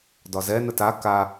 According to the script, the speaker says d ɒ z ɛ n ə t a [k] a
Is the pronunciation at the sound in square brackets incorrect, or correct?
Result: correct